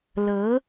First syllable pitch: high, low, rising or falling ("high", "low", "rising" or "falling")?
rising